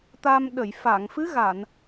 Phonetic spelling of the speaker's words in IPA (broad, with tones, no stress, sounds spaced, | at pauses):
t̪ a˧ m ɗ ə˨˩˨ j f a˨˩˨ ŋ f ɨ˧˥ ɣ a˨˩˨ n